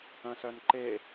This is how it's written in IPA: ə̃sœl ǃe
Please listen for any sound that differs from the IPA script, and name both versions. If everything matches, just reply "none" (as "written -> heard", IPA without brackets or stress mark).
l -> n